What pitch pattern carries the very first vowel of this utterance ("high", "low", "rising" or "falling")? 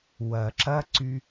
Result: low